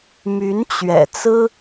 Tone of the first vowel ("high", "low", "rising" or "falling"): rising